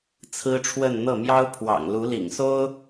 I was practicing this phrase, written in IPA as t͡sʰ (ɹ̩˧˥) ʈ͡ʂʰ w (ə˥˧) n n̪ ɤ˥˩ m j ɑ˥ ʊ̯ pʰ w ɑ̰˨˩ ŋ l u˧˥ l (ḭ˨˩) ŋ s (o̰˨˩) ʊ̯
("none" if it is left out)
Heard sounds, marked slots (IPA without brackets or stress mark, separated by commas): ɹ̩˥, ə˥˧, ḭ˨˩, o˥